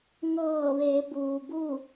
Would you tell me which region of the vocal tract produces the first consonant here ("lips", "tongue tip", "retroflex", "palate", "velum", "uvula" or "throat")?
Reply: velum